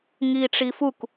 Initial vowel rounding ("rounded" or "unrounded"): unrounded